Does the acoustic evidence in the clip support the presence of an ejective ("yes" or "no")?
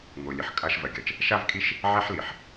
yes